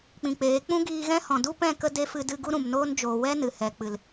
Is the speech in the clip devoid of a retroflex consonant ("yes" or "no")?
yes